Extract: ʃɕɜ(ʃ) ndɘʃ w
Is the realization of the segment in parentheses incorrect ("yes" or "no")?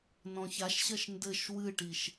no